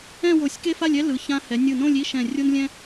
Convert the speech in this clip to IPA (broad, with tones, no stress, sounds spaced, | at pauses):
ɛ̃˥˧ w o˧˩ sʲ k e˥ f a˥˧ lʲ ɛ˥ l ɯ˩˧ ç ã˧ h ɛ˩˧ nʲ ɯ˧˩ n õ˥˧ lʲ i˥˧ ʃ ɛ̃˧˩ rʲ o˥ n lʲ ɛ̃˥